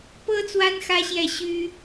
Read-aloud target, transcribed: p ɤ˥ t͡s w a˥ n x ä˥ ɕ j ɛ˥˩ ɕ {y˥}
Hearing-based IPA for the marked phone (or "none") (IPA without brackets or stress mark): y˥